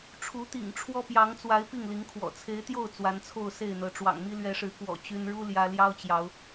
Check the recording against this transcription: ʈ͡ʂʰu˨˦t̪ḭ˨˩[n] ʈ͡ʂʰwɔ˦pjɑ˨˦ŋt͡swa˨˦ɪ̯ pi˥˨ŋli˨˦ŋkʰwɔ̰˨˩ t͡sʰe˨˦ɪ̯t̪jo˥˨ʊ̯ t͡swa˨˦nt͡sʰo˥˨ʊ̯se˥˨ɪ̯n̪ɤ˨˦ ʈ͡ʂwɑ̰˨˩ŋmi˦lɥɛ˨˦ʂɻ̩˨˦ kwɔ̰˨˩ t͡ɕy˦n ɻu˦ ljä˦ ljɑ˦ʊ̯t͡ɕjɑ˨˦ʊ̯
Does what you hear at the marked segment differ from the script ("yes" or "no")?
yes